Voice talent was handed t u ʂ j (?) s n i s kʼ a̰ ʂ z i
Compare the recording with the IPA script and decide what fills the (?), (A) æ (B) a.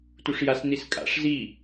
B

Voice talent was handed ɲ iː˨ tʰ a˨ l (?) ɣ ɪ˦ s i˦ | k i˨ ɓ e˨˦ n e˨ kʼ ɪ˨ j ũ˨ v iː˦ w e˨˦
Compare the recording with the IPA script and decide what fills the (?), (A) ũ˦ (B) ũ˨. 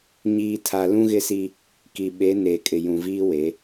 A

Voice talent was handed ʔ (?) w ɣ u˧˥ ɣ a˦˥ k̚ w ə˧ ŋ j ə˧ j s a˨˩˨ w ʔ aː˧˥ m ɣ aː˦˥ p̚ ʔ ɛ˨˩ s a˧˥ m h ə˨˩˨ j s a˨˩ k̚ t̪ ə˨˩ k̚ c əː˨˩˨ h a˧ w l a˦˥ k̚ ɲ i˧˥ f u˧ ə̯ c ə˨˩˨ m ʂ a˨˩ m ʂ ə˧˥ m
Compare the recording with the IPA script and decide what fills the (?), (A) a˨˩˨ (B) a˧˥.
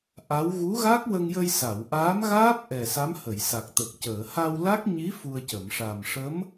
B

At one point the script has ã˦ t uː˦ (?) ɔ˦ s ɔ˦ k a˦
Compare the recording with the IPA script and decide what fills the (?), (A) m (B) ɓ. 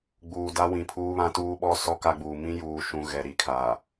B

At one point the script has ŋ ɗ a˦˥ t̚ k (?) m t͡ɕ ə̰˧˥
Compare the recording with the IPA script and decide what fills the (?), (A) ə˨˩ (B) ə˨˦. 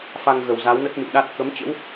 B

